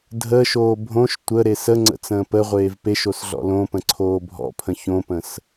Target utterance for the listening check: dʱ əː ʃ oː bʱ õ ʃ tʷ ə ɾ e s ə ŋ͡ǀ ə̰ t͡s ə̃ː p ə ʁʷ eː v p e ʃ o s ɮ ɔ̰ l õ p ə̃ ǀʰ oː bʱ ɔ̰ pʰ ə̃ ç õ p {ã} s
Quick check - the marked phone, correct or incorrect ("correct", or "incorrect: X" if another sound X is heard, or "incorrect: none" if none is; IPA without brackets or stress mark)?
incorrect: ə̃